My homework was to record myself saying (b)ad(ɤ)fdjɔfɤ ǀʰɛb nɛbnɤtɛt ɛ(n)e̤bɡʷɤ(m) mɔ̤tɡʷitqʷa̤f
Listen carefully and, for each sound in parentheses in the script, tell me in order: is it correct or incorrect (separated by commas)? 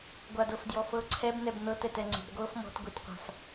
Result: incorrect, correct, incorrect, incorrect